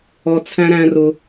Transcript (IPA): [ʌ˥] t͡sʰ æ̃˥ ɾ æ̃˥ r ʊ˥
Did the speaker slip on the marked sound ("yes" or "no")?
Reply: yes